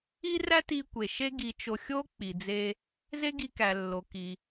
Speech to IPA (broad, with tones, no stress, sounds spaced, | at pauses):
i˥ r æ˥ t i˧ kʷ e˩ ʃ e˥ ɡ i˧ t͡ʃ o˧ xʲ o˥ k͡p i˩ d͡z e˧ | z e˥ ɡ i˧ k æ˩ lː o˩ k i˩